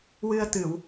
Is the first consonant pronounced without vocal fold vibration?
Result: no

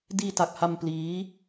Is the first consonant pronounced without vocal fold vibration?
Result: no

